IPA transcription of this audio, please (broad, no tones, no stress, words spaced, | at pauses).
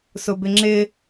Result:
sʊbɪŋ͡ǁɪ